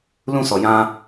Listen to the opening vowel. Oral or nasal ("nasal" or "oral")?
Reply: nasal